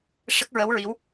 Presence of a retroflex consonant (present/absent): present